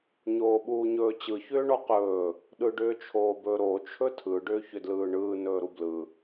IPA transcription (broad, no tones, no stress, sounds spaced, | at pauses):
ɲ oː ɓ uː ɲ ɵː t͡ɕ ɯ ç ʏː ɳ ɔ q ɵː | ɗ ɯ ɖ ʏː t͡ʃʰ oː b ɵ ɾ o t͡ʃʰ ɵ tʰ ɯ ɖ ʏː ç ʏ d l ɯː ɳ ɯː n ɵː ɾ u b l ɯ